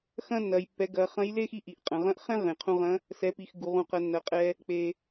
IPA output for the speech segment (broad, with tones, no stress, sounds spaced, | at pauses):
x ɐ̃˥ nː ɐ˩˧ j pː ɛ˩˧ ɡ ɐ˩˧ χ ɐ̃˧˥ j l e˥ x i˧˥ ʔ i˩ ʔ qʼ ɐ̃˩˧ ʁ ɐ̃˥ ʔ χ ɛ̃˥ ʁ ẽ˩ qʰ ũ˧ ʁ ɐ̃˧˥ | s ɛ˩˧ p i˩ x ɡ u˩ ʁ ũ˩ q ɐ˩˧ nː ɐ˩˧ qʼ ɛ˧ | k͡p e˩